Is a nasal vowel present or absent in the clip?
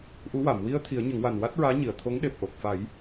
absent